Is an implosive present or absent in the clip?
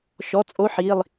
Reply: absent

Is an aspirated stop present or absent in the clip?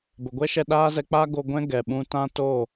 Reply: absent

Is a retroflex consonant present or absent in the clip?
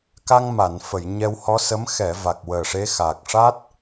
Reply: present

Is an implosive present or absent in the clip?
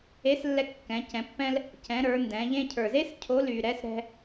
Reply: absent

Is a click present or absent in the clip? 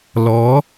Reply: absent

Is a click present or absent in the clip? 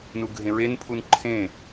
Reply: present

